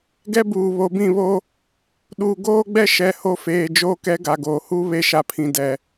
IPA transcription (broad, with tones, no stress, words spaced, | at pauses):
ɡɛ˦buː˨βo˨˦ bĩ˦˨βo˦ | ɗuː˨ɡoː˦ɡ͡bɛ˦ ʃɛ˨ ho˦˨feː˨d͡ʒoː˦ kɛ˦ɡa˨ɡoː˨ hu˦βe˦ʃa˨pʰĩ˨ dɛ˨